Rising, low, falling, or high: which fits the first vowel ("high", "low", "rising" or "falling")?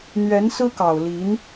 rising